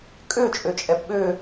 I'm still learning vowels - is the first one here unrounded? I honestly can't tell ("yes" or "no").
no